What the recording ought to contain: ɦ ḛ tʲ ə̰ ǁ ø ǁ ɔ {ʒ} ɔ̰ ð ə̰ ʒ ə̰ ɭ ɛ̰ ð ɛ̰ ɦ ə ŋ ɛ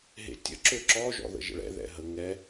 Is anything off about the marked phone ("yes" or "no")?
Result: no